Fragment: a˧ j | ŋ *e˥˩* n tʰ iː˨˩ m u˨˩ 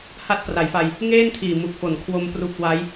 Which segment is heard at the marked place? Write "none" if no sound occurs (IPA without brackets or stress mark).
eː˥˩